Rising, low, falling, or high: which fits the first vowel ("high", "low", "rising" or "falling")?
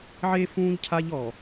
high